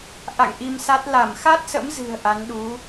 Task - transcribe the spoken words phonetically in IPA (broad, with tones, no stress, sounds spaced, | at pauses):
ʔ a̰˧˨ ŋ ʔ i˧ m s a˦˥ t̚ l a˧˩ m x a˦˥ t̚ s ə̰˧˥ m z ɨ̤˨˩ ə̯ ʔ a˨˦ n ɗ u˨˦